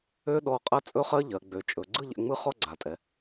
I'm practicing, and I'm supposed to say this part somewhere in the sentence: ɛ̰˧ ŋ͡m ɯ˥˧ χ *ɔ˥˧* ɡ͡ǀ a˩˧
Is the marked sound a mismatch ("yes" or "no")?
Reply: no